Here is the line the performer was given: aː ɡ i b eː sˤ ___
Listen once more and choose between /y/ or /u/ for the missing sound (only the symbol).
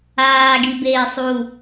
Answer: u